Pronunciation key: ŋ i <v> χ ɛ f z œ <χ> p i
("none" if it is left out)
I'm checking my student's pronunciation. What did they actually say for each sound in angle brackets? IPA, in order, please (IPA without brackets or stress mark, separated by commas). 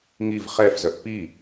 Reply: v, ʔ